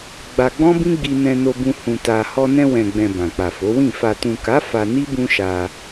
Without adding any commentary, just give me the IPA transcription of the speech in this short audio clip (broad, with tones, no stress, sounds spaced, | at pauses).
ɡ͡b a˧ ɡ͡b ɔ̃˦ b ĩ˦ ɡ͡b i˧ n ɛ̃˧ n o˧ b ũ˧ h ũ˧ t a˧ h ɔ˧ n ɛ̃˧ w ɛ̃˨ ɡ͡b ɛ̃˨ b ã˨ k͡p a˨ f o˨˦ w ĩ˦˨ f a˨ t ũ˨ k a˨˦ f a˧ n i˦ b ũ˦ ʃ a˧